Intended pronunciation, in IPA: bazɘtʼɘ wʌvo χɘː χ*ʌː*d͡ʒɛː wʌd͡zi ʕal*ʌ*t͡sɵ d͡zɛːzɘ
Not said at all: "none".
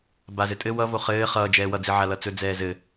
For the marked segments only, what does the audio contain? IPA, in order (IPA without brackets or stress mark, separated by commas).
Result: ʌː, ʌ